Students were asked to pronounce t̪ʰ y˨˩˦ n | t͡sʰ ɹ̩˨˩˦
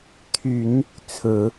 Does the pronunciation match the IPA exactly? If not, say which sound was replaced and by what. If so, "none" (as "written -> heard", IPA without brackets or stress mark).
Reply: none